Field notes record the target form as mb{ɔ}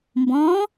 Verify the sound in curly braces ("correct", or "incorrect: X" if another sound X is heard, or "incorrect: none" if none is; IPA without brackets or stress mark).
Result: incorrect: ɔ̃